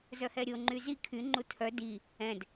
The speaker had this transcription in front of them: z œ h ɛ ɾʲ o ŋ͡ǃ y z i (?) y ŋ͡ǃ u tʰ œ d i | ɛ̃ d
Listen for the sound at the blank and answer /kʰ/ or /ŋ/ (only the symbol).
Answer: kʰ